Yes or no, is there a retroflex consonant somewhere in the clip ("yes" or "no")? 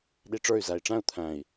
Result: yes